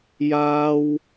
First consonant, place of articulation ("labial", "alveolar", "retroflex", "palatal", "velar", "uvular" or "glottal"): palatal